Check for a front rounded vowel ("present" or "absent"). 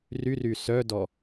present